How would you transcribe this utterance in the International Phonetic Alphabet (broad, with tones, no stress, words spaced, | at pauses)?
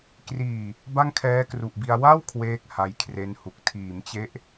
kriː˨˩ | ba˥˩ŋkʰɛː˦˥kru˨˩ʔbi˧a̯ wa˥˩w kʰweː˥˩k̚ha˦˥jkʰre˦˥nhu˨˩k̚ tʰiː˩˦mt͡ɕe˦˥ʔ